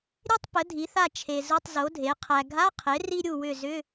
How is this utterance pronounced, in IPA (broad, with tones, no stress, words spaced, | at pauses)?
ɾʲe˥tˤpə˩˥dʱi˩˥θa˦˨ t͡ʃʰe˨zʊ˧˥˧tˤzo˩˥dʱe˩˥ qʰæ˨ɡʱa˧˥˧qʰe˩˥ ri˥ ɾʲu˦˨wʏ˦˨ zʏ˧˥˧